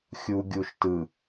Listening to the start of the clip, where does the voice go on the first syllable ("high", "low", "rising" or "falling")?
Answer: low